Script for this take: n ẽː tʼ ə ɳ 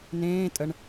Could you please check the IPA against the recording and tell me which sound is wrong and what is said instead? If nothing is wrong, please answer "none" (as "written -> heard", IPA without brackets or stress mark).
none